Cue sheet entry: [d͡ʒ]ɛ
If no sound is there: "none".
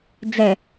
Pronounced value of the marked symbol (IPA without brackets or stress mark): d͡z